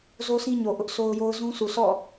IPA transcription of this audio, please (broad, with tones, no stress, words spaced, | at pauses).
zo˦sĩ˦ɲo˨ ʔʊ˦ʔso˦ʊ̯jo˦ʊ̯ zũ˦su˨ sʰɔ̰˦˨